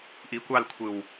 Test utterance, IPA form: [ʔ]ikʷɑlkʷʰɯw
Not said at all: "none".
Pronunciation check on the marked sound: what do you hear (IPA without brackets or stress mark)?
ʔ